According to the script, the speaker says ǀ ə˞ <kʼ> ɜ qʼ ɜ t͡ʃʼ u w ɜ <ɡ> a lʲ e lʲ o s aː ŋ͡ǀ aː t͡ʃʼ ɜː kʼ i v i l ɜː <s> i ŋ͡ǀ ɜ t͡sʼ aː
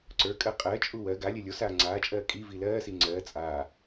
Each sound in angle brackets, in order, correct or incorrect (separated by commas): correct, correct, correct